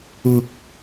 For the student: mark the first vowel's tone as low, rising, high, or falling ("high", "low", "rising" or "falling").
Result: low